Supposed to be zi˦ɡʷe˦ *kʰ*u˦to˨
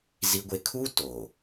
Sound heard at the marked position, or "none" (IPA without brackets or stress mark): kʰ